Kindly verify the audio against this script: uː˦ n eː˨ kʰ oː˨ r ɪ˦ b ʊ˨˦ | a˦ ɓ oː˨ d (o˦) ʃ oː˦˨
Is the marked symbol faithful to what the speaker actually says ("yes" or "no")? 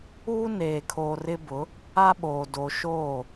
no